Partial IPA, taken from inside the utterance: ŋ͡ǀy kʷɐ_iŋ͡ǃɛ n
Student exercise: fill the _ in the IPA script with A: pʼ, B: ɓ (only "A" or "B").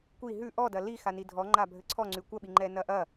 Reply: B